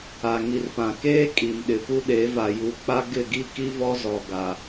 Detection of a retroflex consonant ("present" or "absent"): absent